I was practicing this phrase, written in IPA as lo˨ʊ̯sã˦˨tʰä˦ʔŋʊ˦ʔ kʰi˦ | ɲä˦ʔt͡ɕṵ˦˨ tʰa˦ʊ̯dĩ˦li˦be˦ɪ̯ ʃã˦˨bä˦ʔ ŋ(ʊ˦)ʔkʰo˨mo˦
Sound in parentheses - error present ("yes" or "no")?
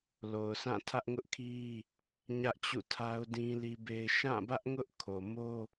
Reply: no